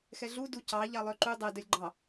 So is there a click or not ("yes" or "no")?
yes